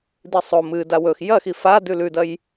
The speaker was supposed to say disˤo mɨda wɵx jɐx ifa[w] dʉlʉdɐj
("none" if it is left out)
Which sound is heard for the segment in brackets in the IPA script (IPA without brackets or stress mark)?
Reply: none